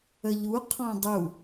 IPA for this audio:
əʎu qʰɔ̃dˤu

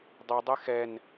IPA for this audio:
dˤi dˤexɛn

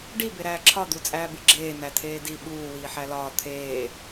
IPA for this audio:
ɖi beɾæːǁʰɒ d̪ut͡sʼæːbiɡ͡ǁeː nætʰeːdi ɓuː wiːħælɒː t̪ʰeː

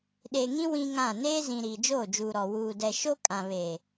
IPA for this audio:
ɗe˨ŋĩ˦ wĩ˦ŋã˦˨ neː˦zĩ˨ ɾiː˨d͡ʒoː˦˨d͡ʒuː˨ɾɔ˨ wuː˨dɛ˨ʃo˦ kʼã˨βe˨

